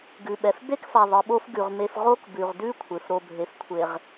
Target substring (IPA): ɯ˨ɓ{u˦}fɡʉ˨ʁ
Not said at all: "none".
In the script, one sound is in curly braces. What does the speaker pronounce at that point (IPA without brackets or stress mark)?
o˦